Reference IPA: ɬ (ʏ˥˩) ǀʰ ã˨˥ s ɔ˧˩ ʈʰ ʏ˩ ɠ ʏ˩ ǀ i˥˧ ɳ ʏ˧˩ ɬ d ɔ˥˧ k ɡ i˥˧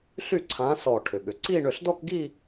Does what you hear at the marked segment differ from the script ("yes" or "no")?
yes